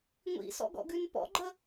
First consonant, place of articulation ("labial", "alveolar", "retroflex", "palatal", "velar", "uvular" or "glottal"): velar